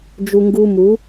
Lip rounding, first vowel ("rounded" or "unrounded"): rounded